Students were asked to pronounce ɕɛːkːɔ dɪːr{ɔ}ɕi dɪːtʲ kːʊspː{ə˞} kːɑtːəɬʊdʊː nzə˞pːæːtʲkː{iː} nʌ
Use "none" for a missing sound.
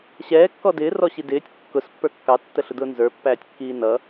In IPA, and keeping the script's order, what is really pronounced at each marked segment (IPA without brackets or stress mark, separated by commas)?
ɔ, ə˞, iː